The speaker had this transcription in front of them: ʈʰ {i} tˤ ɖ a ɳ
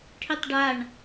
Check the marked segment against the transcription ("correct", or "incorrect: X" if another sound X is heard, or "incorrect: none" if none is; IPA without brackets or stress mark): correct